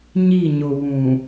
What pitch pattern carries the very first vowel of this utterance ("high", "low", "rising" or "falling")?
falling